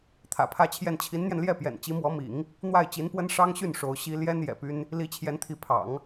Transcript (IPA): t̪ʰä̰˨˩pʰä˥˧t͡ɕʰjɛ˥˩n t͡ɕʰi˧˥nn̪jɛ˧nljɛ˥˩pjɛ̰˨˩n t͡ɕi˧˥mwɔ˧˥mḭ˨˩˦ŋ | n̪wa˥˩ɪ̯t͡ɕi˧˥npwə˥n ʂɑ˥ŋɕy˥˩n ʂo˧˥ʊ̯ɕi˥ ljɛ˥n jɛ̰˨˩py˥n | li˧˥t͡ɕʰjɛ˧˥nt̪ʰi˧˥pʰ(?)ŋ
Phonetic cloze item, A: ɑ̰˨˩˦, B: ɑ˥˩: A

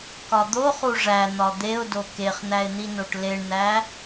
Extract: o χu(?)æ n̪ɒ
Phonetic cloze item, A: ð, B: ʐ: B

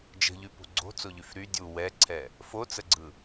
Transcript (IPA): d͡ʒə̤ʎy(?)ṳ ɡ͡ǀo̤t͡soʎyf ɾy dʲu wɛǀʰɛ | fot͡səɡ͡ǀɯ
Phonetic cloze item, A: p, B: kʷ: A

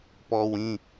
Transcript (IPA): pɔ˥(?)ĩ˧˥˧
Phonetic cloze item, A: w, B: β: A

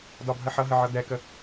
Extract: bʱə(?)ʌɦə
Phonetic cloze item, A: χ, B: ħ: B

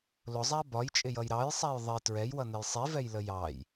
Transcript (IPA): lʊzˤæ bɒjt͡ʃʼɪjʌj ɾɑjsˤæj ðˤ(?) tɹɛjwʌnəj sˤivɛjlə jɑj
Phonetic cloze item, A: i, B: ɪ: A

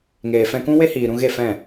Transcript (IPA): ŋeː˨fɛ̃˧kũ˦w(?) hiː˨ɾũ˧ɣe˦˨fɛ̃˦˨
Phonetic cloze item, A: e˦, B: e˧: A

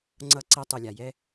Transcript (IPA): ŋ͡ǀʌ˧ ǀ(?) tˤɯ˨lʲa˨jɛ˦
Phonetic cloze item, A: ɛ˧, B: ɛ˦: A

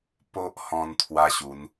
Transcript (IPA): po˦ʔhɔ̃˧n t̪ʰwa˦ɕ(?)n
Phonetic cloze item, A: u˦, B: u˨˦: B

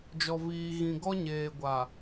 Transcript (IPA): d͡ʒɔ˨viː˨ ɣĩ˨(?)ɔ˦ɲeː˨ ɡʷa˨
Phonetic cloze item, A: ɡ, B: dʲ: A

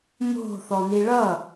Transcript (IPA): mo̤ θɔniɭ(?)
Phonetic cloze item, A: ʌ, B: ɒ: A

